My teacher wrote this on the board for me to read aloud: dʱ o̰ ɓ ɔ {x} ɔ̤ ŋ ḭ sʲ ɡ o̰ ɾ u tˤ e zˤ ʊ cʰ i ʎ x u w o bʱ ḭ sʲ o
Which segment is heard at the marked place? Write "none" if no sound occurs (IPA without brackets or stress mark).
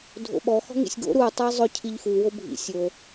x